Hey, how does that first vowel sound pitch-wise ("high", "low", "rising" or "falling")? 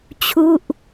falling